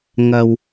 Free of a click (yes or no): yes